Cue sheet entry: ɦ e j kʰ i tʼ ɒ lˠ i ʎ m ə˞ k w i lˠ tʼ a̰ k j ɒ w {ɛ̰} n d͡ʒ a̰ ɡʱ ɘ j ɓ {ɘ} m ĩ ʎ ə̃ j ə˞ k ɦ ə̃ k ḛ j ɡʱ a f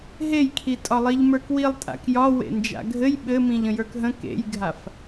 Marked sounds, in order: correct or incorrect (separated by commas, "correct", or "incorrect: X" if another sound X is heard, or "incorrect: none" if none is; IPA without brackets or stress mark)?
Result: incorrect: ḛ, correct